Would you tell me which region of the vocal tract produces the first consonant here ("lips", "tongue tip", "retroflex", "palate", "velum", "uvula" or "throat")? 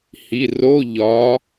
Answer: throat